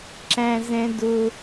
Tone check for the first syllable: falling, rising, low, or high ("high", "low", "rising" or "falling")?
high